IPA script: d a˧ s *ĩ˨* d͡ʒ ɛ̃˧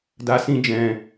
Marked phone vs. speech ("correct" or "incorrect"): incorrect